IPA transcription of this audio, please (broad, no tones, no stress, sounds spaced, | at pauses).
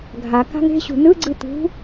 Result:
ɡʱ a k a̤ ŋ e̤ ɕ ṳ n ɯ ɡ͡ǀ ɯ t̪ ṳ